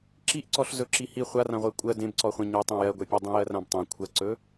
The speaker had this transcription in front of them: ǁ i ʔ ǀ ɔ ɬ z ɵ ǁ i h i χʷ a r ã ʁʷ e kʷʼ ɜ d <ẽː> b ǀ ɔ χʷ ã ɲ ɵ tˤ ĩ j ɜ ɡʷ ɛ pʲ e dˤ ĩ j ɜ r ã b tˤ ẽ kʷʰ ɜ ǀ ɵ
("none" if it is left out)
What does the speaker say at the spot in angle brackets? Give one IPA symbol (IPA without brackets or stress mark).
ẽ